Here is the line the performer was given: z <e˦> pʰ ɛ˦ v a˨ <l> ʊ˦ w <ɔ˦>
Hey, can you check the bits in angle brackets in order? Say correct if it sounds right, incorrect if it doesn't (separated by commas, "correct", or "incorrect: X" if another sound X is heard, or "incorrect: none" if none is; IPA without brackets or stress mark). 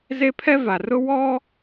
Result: correct, incorrect: r, correct